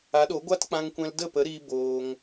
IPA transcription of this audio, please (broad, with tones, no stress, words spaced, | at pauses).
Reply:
a˨˦ɗo˨˦ɡʷa˦t k͡pã˧ŋkʷɛ̃˧l də˦˨pə˨˦ɾiː˧ boː˧ŋ